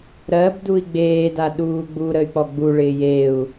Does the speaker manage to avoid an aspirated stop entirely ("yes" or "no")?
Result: yes